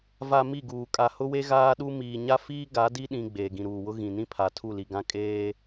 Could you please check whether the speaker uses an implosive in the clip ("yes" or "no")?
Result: yes